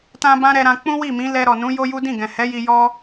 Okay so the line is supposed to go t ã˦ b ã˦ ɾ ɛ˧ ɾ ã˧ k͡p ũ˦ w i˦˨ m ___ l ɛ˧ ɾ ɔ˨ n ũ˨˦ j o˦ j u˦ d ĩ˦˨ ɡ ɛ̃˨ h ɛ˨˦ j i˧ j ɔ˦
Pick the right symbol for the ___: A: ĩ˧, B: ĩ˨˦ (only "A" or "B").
B